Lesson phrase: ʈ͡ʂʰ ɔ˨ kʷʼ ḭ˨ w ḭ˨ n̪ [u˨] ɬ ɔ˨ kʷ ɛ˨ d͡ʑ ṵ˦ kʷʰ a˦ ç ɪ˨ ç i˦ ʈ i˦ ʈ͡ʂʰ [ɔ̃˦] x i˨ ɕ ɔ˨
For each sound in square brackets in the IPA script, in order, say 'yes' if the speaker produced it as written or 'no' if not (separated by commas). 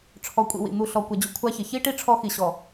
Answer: yes, no